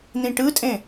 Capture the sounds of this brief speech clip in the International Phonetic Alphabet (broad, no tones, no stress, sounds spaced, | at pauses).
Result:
n̪ ĩ ʈ ɯ tʼ ẽ